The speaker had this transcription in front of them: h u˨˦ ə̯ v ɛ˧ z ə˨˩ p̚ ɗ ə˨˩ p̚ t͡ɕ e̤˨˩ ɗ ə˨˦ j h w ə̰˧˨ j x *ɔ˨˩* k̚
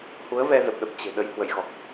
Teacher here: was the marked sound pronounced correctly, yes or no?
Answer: yes